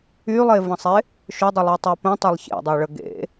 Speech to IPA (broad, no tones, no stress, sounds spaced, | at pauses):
y lˠ e v ɐ̃ sˤ e | ʃ ø dˤ ɪ lˠ e tˤ a p ə̃ tˤ a lˠ ç ḛ dˤ o ɭ ə ɡ ḛ